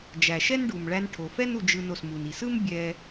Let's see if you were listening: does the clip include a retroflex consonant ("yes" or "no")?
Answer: yes